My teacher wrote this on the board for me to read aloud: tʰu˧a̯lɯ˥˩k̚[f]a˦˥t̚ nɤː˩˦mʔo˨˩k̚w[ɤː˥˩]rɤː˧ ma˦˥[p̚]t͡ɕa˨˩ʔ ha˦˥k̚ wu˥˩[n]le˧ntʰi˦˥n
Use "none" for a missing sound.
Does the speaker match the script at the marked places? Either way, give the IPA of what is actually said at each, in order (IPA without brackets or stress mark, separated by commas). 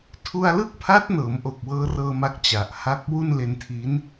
pʰ, ɤː˧, k̚, n